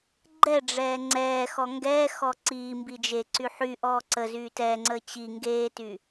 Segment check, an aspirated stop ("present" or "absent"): absent